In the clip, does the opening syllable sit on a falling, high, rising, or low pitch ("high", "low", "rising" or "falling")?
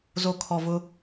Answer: low